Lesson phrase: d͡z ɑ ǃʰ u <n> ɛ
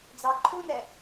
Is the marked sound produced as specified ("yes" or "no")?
yes